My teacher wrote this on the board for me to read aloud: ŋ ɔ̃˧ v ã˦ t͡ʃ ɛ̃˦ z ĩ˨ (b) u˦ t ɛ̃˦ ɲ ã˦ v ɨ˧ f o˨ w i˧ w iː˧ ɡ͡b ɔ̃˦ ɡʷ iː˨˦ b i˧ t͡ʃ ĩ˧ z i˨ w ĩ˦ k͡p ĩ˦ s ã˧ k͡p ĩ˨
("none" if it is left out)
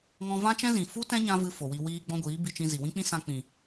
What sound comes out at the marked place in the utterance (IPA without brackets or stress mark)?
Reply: f